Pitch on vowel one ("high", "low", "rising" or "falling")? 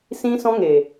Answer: high